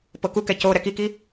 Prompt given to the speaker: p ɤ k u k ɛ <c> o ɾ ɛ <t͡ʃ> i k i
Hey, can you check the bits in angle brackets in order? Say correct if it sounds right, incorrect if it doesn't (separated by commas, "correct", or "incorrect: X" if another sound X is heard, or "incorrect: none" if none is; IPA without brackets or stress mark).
correct, incorrect: k